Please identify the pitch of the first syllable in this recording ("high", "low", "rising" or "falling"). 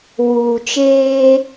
low